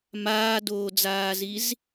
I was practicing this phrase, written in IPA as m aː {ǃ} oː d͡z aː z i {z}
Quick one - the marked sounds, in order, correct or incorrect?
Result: incorrect: d, correct

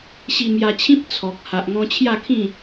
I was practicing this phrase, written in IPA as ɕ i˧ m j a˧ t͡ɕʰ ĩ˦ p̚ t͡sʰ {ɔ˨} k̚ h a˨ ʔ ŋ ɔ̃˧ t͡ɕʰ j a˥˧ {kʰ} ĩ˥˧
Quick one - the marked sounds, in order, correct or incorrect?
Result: correct, correct

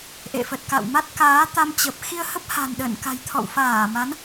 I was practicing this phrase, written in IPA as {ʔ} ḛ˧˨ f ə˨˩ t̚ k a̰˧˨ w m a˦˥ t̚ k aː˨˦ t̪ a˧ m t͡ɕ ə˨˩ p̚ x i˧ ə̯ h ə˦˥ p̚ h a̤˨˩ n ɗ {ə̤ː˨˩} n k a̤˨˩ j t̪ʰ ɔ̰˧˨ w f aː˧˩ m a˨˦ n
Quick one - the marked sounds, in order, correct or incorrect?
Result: correct, incorrect: ə̰ː˧˨

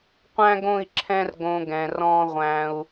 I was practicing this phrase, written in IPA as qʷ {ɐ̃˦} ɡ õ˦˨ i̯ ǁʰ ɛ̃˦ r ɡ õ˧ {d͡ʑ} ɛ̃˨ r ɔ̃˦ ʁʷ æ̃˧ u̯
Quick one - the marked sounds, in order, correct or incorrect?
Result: incorrect: æ̃˦, incorrect: ɡ

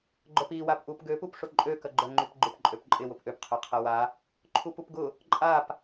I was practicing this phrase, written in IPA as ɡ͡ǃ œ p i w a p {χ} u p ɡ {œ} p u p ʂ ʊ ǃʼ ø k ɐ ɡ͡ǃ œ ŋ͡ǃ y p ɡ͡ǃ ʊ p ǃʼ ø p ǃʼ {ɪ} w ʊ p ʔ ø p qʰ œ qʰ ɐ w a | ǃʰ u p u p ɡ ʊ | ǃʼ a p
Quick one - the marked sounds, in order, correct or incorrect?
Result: incorrect: ʔ, incorrect: ø, correct

